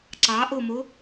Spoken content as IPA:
ǀ ɑ ʔ o m o

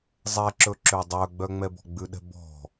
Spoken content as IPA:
zˤ ɛ ǁ ɵ ǁ ø dˤ œ ɡ͡b œ ŋ͡m ɛ b ɔ̤ ɡ͡b ʉ ɗ ɛ̤ b ɔ̤

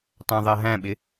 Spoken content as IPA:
tˤ æ̃ ðˤ ɜ ɦ æ̃ ɓ ɪ

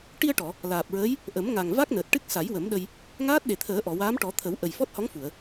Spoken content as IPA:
ʈ i˧ ə̯ ʈ ɔ˨˩˨ | l aː˨˩ p̚ ɹ əː˧˥ j | ʔ ə˨˩˦ m ŋ a˨˩ ŋ v a˦˥ k̚ n əː˨˩ t̚ ʈ ɨ˦˥ k̚ s a˨˩˦ j w ə˨˩˦ m ɗ ə˧ j | ŋ aː˦˥ t̚ ɗ e˨˩ t̪ʰ əː˨˩˦ ʔ ɔ˨˩˨ w aː˧˥ m ʈ ɔ˨˩˦ t̪ʰ ə˨˩˦ w ʔ ə˨˩ j f ɔ˦˥ t̚ h ɔ˧˥ ŋ f u˨˩˨ ə̯

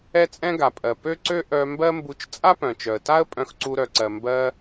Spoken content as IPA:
ɛ˥ t͡sʼ ɛ̃˥ ɡ a˩ pʼ ɜ˩ p ø˥ ǀ ø˥ ʔ œ˧ m b ɜ˥ m b u˧ t͡ʃ t͡sʼ a˥ p œ̃˩ t͡ʃ œ˩ ə̯ t a˥ ə̯ pʼ œ̃˧ x ǀ u˧ ɾ œ˩ ǀ ɜ˩ m b ɜ˧

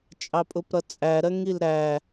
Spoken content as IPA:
t͡ʃʼ ɑ pʼ ʊ p ɾ ʌ t͡sʼ æ ɾ ɜ ŋ i l ɾ æ

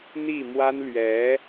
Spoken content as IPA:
n̪ i˥˩ m w a˥ n l ɥ ɛ˧˥

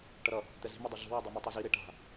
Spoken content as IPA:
ʈ ʌ ɾ ʌ | t̪ ɛ z i̤ m o dˤ u ɮ ṳ w o dˤ i m u tˤ i z i ɾ e ʈ a̤

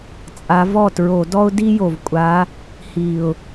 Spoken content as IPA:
t͡sʼ a˨˦ v ɔ˥˩ t ɹ o˧˩˧ d ɔ˥ ʊ̯ d i˥ j o˨˩ v kʷʼ a˨˦ | h i˨˩ ʊ̯

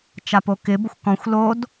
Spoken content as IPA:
t͡ʃ a p o k ɪ b ʊ xʷ k ɔ̃ xʷ l o d

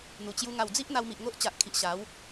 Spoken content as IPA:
n̪ u˨˩ t͡ɕ j u˧ ŋ a˨˩ w d͡z i˦ ʔ n̪ a˧ w m i˨ ʔ ŋ o˦ ʔ t͡ɕ a˨ ʔ kʰ i˨ ʔ ɕ a˨˦ w

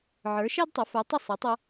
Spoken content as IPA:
ʕ ə˞˩˥ ʃ æ˥ d tˤ ʌ˩˥ f ə˞˩˥ tˤ ɪ˥˩ sˤ æ˩˥ tˤ ʌ˧

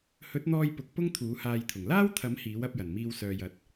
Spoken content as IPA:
h ɵ˨˥ t̚ n̪ ɔː˧ j p ʊ˨˥ k̚ p ʊ˥ ŋ t̪ʰ uː˨˥ h aː˧ j t̪ʰ ʊ˨˩ ŋ l aː˥ w t̪ʰ ɐ˨˥ m h iː˨˥ w ɐ˨˥ p̚ j ɐ˨˩ n m iː˧ w s œː˨ j ɐ˨ t̚

